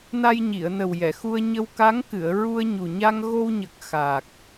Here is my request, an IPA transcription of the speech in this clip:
na˧jɲi˨˩˨ə̯nə˨˩w jɛ˨˩˨xu˧ə̯ ɲə˧wka˧˥ŋkɨ˨˩˨ə̯ ɹu˧ə̯ɲu˨˩ɲa˧ŋ ɣo˧wɲə˨˩k̚ xaː˨˩k̚

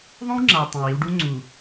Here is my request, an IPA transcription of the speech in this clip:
ðˤõ˦wŋ͡ǁa˨w tˤĩ˨wi˦w ɖu˦ŋ͡ǀu˨

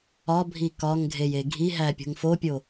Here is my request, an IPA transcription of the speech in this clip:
ɒbʱi kɒŋɡʱeje ɡʱiɦæpʲo̤ŋ fopʲo

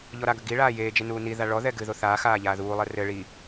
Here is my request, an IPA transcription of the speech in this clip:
ʎɔɾaɡɐ ɡi ɭaːjeːd͡ʒe nuːniða ɭɔðɛ ɡɨðo θaːxaː ʎaːðuːlˠɛ rɘ ɭi

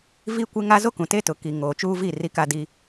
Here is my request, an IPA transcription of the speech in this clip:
viː˦kʷe˦ŋa˦ zo˦kũ˨te˦tʊ˨ ki˨ ŋoː˨t͡ʃuː˦vi˦˨ ri˦ka˦diː˦

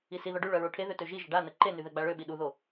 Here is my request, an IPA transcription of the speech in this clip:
isiðɔ ɖyɭœ ɹoʈʰeðø tøʒiʒə ɖanə ǃeny ðɛɡ͡baɭøɓi ɗuðo

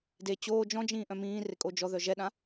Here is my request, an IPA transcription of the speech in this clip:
de t͡ɕoː d͡ʒɔ̃d͡ʒĩː ʔœ̃mĩːre kʼod͡ʒɔðœ ʒɛɗã

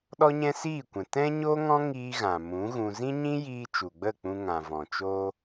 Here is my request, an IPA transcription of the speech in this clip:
ɗɔ˦ɲɛ̃˦siː˦˨kʷɛ̃˨ tɛ̃˦ɲo˦ŋɔ̃˦ ŋiː˦ɣã˨ mũ˨˦ɣũ˧ zĩ˦ɲĩ˦jiː˧ t͡ʃu˨ɡ͡bə˦˨k͡pũ˧ŋã˨ vɔ̃˨t͡ʃo˦

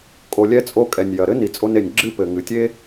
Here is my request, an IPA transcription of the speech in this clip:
kʼo˩lʲɛ˧t͡sʼo˧ kʼɛ˩nʲjɐ˩ɾɘ˧ ni˩t͡sʼo˧ne˩nʲ ɡ͡ǁɨ˥pɘ˩ŋɨ˩ tʲe˥

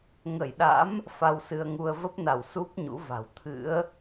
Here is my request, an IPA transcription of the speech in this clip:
ŋə˧˩jɗa̰˧˥m | fa˧wsɨ˧ə̯ŋu˧ə̯ və˦˥p̚na˧˩w su˦˥p̚ ɲṵ˧˥va̤˨˩w t̪ʰɨ̰˧˥ə̯

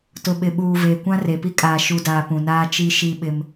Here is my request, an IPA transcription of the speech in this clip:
tʊ˨ɓɪ˨ɓuː˨ veː˨kʷã˦re˨pi˦ kʼaː˨ʃu˨daː˨ pũ˨naː˦t͡ʃi˦ʃi˦ ɓɪ˦m

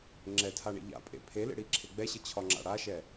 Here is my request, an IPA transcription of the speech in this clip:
ŋ͡ǁɛtʰaɳḛ ʎa̰pʼḛ pʰelḛɽiǁʰe ɡ͡bɛɕət͡ɕʰɒŋ͡ǁa̰ ɽaʃɛ

